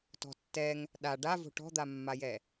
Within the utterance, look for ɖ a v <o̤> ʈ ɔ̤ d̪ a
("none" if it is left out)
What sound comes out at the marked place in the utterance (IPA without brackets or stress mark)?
o̤